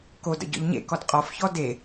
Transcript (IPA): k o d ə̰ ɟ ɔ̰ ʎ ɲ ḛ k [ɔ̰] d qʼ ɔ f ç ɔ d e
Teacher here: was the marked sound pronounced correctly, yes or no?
no